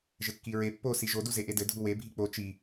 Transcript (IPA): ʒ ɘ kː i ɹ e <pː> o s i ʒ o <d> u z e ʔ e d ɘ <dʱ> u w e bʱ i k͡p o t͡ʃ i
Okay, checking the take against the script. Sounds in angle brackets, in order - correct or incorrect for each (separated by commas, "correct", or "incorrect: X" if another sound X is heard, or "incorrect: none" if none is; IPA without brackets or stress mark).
correct, correct, correct